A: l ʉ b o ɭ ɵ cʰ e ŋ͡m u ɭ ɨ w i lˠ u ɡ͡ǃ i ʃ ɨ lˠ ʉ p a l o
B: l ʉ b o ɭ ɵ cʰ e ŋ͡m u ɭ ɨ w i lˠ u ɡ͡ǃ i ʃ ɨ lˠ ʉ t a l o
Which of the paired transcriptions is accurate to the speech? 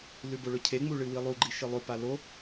A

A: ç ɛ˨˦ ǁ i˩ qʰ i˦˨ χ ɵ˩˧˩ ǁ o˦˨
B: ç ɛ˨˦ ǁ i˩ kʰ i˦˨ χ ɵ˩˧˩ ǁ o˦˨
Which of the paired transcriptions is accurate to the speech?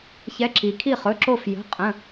B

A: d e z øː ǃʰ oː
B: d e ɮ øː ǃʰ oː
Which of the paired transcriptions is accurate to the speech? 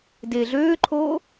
B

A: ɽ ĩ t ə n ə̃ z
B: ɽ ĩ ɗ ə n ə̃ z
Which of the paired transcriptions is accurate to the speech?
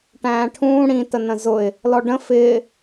A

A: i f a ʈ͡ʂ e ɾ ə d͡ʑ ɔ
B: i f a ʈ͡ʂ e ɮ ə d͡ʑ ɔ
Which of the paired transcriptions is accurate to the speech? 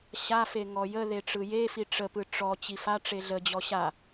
B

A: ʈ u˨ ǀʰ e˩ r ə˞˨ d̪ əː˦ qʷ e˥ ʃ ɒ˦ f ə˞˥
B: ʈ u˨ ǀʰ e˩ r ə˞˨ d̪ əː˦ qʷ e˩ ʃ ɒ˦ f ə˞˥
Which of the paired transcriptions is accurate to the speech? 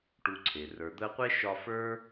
A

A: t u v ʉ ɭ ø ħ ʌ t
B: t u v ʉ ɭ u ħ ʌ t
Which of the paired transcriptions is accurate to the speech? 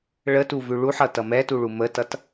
B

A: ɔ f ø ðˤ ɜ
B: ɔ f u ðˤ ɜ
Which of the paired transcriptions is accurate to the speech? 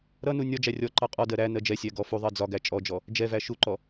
B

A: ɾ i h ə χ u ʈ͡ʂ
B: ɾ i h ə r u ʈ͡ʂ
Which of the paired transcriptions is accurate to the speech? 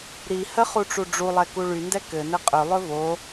A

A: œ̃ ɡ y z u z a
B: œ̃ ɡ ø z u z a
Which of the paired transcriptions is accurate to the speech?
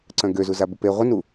B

